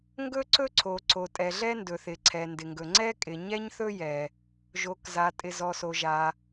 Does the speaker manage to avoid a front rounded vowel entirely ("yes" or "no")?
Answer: yes